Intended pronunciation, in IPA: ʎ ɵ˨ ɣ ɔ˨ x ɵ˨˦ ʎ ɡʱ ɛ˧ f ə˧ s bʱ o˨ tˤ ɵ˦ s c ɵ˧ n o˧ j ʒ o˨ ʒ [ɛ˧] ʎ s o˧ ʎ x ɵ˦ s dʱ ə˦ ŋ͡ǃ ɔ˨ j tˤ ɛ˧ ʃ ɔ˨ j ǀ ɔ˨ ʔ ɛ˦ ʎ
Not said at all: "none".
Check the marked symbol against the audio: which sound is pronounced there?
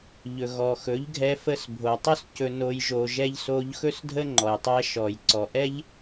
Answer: ɛ˧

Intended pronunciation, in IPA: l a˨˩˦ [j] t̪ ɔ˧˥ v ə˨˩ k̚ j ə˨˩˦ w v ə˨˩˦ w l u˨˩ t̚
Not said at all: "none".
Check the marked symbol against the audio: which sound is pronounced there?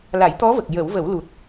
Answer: j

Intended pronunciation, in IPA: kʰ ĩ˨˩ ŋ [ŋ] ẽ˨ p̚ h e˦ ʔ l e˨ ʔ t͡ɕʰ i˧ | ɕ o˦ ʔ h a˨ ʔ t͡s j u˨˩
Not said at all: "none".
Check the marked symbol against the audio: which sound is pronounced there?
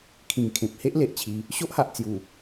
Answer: kʰ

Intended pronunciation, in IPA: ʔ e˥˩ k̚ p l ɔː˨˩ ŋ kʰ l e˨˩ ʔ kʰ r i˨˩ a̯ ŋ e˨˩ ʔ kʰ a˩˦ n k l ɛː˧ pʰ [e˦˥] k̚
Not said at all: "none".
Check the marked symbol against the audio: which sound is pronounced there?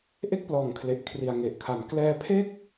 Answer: e˥˩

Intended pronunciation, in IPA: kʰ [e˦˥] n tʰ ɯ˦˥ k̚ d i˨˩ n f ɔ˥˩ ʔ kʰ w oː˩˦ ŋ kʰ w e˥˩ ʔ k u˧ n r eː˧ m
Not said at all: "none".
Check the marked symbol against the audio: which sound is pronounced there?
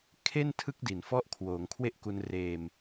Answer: e˥˩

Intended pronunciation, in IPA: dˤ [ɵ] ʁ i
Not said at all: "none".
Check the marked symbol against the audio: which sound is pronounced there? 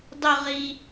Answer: ʊ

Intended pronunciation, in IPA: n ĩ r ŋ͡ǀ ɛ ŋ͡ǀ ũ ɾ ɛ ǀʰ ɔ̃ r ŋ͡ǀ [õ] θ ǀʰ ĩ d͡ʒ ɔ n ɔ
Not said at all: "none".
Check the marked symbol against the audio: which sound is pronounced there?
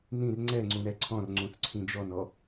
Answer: ũ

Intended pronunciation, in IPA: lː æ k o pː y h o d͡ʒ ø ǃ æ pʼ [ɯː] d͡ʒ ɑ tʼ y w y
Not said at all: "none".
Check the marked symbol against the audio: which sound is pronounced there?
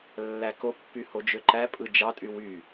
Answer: ɯ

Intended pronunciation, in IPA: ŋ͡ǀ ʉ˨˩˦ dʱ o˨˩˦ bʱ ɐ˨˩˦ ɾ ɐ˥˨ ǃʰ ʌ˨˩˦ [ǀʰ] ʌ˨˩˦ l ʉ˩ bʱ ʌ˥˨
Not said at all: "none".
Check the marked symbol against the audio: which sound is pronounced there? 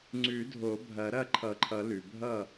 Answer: ǃʰ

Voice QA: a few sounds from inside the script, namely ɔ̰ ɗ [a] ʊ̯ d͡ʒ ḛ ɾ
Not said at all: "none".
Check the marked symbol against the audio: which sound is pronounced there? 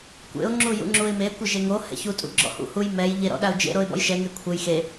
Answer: a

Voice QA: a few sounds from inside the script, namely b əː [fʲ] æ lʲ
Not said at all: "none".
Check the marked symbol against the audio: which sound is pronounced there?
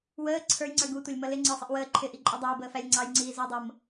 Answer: f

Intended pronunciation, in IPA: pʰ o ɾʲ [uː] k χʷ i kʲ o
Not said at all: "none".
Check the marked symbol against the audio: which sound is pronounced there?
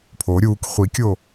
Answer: uː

